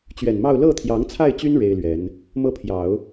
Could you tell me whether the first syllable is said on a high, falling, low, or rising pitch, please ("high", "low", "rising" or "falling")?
low